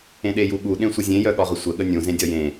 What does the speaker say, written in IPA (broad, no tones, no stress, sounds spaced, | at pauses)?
ẽ ɗ e j u ɠ u ɗ ẽ sʷ ə zʲ ẽ j œ ɠ ɒ ʁ ə sʷ ə ɠ ə nʲ ũ z ẽ dʲ ɒ j ẽ